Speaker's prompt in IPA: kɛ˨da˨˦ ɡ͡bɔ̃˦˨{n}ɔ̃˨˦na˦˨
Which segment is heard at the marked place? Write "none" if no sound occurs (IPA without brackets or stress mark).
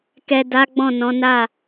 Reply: n